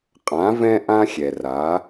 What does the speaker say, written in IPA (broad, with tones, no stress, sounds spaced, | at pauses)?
qʼ ã˩˧ v ɛ̃˧ ʔ ã˧ xʲ ɛ˩ r a˩˧